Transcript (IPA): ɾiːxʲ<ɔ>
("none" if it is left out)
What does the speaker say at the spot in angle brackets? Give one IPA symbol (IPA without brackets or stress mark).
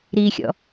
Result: ɔ̰